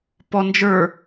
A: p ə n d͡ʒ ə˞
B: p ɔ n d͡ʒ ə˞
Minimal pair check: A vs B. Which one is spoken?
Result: B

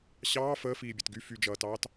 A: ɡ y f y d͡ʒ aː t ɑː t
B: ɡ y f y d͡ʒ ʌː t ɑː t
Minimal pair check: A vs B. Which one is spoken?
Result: B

